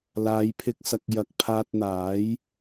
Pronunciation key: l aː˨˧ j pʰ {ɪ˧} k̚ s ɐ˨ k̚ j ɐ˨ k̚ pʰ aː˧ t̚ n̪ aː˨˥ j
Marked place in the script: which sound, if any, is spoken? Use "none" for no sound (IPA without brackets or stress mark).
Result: ɪ˧